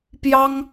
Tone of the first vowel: high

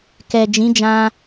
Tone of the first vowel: low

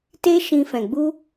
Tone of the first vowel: high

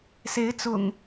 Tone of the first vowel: rising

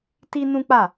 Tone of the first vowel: high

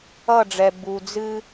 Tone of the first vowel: falling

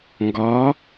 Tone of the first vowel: rising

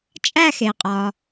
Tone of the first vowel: falling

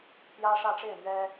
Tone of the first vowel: high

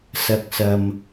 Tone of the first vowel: low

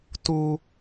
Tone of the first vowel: high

